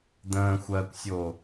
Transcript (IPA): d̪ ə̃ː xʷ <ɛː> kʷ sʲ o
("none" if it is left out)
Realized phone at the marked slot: ɜː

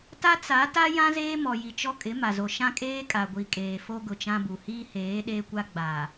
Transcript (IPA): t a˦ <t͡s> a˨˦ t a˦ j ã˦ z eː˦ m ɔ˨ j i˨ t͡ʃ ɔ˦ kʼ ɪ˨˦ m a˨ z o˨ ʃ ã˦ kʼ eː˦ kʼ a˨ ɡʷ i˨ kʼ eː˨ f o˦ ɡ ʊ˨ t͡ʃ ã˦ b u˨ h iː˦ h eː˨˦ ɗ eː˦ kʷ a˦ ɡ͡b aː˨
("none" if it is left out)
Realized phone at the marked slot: t͡s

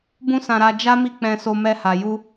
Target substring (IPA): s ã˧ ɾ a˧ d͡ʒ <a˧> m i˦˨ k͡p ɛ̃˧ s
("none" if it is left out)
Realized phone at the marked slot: a˦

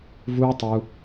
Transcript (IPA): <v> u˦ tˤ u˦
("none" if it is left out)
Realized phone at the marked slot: v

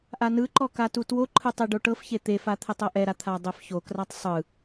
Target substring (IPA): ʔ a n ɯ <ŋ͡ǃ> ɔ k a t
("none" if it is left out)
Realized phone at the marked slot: ǃ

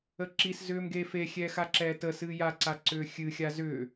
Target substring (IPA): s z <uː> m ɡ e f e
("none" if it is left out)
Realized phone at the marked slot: ʏː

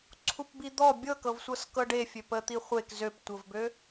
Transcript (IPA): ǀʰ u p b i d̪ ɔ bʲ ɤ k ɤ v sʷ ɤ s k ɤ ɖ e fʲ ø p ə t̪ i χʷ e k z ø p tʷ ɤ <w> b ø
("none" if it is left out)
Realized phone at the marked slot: v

